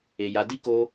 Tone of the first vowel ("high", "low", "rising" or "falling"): low